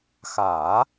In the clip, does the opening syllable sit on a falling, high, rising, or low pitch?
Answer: low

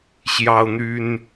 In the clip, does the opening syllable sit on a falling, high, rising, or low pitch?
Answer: high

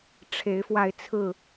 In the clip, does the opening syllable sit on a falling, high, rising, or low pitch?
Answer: rising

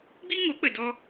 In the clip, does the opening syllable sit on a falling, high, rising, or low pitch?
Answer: high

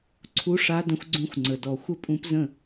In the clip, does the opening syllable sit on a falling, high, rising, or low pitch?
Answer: rising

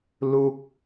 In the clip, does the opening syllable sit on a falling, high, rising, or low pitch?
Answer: falling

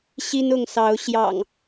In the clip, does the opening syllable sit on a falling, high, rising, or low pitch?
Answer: high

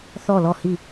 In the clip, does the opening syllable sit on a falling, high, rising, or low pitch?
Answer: falling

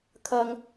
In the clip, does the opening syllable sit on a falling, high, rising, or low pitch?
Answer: high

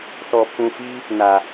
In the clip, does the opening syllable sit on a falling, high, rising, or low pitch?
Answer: low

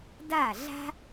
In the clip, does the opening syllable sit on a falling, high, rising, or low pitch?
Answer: falling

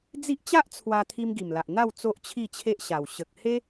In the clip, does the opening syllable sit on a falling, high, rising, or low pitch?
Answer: high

